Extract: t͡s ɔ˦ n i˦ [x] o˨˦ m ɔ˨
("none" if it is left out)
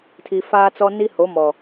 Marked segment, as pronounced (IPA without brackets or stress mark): h